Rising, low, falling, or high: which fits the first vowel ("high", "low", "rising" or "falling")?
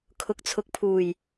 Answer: rising